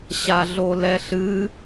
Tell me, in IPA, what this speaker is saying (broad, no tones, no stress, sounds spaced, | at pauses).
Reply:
ɕ a ɮ o l ɛ ɬ ɨ